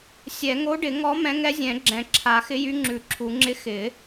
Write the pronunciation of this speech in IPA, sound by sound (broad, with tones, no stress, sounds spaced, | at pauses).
sʲ ɛ˨˩˦ ŋ o˧˥ ɖ ɪ˨˩˦ ŋ ɔ˧˥ m ɛ̃˧˥ ŋ ɛ˧˥ zʲ ɛ̃˨˩˦ ɡ͡ǁ ɛ̃˨˩˦ ǁʰ a˨˩˦ x ɪ˧˥ j y˧˥ ŋ͡ǁ ʉ˨˩˦ ǁʰ u˨˩˦ ŋ͡ǁ ɪ˧˥ x ɪ˨˩˦